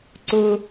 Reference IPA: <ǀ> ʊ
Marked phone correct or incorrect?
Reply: correct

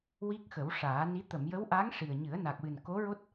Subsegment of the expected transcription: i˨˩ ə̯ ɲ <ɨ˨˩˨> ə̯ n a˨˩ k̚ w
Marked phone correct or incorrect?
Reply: incorrect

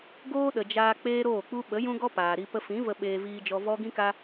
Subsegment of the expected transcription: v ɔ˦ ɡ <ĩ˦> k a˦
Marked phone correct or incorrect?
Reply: correct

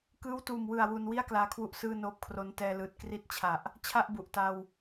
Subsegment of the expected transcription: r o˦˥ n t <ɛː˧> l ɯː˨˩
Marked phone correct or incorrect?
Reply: correct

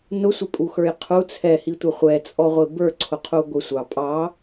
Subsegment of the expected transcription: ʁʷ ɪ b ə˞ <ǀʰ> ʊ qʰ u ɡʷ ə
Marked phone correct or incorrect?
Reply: correct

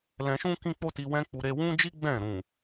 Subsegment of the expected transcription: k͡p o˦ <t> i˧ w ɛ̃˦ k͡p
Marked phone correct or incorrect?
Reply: correct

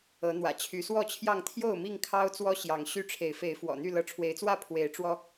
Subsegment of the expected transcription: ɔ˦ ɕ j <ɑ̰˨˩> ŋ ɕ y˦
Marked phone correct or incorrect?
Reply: incorrect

